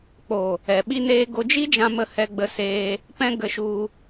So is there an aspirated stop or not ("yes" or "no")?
no